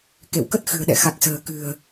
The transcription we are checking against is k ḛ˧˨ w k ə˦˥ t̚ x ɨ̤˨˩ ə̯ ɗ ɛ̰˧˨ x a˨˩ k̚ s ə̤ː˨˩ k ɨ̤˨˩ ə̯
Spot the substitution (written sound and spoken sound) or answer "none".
none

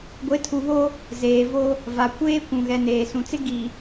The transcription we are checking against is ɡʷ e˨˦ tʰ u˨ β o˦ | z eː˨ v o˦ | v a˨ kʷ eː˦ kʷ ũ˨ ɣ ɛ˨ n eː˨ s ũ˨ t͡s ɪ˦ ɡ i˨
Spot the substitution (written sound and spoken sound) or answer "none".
none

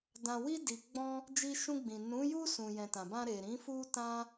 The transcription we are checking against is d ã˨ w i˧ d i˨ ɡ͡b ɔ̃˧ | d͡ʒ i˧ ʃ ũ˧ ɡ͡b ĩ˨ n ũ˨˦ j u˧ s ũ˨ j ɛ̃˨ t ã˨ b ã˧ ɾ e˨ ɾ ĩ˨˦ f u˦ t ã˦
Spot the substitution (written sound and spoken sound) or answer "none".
none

